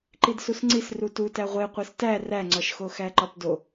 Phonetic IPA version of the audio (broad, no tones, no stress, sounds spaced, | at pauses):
ǃ i d s u s ŋ͡ǀ i s r u t u t æ ʁʷ e qʷ e s t æ r æ ŋ͡ǀ ɒ ʃ x o x æ ǃ ɒ p d o